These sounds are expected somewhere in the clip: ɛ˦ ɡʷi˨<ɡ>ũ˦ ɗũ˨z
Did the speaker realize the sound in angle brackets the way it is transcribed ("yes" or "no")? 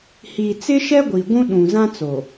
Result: no